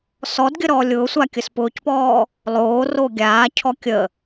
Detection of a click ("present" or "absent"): absent